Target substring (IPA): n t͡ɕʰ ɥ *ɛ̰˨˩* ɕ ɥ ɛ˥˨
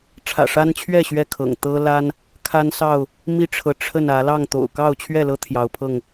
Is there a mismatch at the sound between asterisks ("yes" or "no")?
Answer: yes